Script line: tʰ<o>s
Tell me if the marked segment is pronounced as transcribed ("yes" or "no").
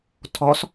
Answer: no